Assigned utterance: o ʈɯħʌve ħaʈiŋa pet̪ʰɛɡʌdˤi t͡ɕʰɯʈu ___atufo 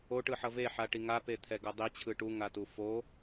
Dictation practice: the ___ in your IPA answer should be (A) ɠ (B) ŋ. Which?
B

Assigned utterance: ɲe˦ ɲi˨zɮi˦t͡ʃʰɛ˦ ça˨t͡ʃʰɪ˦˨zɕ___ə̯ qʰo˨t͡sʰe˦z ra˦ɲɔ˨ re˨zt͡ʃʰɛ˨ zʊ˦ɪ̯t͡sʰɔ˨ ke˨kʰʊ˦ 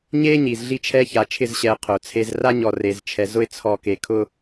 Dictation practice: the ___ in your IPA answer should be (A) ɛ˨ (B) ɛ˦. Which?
A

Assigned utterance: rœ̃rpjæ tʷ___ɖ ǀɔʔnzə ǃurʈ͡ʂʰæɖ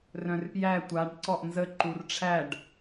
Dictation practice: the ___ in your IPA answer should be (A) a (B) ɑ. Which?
A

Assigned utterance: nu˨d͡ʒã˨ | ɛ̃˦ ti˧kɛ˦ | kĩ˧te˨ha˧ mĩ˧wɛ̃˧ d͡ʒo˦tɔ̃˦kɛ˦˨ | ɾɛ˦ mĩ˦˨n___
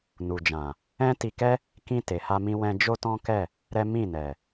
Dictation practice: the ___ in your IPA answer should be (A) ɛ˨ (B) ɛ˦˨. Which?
A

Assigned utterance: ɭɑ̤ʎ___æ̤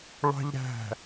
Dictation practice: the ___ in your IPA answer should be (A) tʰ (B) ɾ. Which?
B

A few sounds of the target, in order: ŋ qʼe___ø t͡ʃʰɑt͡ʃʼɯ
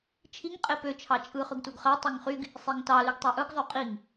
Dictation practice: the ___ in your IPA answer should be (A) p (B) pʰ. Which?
A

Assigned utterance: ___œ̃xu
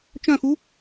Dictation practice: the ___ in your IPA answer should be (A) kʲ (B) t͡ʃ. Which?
B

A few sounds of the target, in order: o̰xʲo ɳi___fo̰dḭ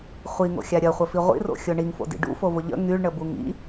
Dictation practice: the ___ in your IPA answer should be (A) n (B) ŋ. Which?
B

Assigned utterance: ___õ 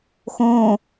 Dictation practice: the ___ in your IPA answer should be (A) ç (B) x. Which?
B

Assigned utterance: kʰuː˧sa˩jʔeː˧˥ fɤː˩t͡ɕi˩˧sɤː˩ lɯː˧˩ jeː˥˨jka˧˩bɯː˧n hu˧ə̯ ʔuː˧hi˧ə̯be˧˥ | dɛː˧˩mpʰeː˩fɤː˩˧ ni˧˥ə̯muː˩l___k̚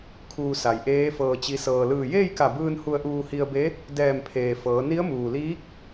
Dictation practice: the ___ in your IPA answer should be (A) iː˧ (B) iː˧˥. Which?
B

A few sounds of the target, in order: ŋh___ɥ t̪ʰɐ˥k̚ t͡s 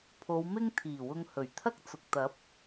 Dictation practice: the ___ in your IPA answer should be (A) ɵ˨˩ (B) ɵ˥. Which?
A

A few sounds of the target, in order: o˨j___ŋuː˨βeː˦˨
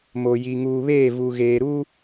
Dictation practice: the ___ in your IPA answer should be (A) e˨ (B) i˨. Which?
B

